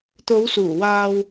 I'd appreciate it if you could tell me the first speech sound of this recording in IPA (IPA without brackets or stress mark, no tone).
t̪